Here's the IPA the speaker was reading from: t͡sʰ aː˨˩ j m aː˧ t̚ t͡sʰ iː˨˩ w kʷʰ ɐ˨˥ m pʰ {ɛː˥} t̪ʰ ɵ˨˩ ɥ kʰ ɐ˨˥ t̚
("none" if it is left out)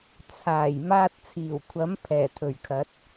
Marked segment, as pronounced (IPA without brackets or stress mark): ɛː˨˩